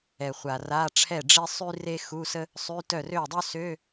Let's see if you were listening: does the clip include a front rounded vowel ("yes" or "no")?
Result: yes